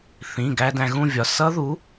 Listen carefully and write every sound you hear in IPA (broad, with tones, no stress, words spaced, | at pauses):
θĩ˩˧˩ɡæ˧ dæ̃˧ɣũ˥˧vʲɒ˩˧˩ sʌ˦˥ðu˨˥